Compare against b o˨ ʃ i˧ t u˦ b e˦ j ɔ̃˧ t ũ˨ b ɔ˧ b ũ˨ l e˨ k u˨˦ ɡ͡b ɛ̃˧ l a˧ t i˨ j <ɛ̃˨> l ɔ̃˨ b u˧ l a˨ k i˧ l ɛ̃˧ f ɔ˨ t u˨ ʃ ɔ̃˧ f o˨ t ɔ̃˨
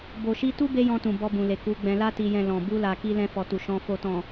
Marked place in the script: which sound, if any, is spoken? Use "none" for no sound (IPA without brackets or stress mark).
ɛ̃˨